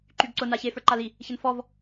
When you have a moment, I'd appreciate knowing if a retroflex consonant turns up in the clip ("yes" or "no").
no